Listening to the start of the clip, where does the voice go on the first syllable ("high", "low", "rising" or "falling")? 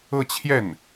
falling